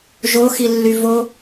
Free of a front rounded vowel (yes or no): no